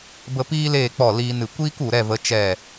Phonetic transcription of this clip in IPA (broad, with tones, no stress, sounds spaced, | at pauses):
b ə˧ p iː˦ l eː˦˨ k͡p ɔ˦˨ l iː˧ n ɨ˨ kʷ iː˦ k u˨ ɾ ɛ˦˨ v ə˨˦ t͡ʃ ɛ˦˨